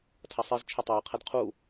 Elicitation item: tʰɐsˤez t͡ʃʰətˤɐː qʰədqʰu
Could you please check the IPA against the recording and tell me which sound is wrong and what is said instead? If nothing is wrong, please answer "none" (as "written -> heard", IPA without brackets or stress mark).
none